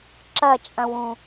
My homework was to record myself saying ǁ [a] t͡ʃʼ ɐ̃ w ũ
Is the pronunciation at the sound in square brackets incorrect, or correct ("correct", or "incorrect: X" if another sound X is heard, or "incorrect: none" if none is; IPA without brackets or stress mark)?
incorrect: ɐ